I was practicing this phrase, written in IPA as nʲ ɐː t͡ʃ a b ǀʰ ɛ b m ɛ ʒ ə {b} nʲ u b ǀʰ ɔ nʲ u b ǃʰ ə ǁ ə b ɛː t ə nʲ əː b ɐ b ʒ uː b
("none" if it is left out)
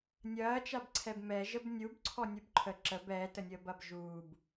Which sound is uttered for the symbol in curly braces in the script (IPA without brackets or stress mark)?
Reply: b